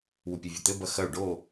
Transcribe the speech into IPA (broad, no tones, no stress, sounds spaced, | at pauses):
w u pʲ e vʲ ɐ t̪ ɘ b ɐ x ɐ u̯ ɖ o